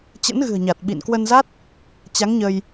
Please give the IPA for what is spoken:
t͡ɕə̰˧˥nɣɨ̤˨˩ə̯ɲa˨˩t̚ ɓḭ˧˨nkwə˧nza˦˥t̚ | t͡ɕa˨˦ŋɲə˧j

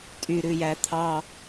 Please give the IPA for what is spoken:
tʼyɾʉjæ t̪ʰɑ

